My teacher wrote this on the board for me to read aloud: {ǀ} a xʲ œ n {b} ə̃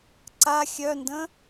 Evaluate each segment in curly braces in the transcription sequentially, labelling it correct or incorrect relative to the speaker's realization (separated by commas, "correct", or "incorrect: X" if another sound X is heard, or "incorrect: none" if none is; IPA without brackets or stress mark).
correct, incorrect: d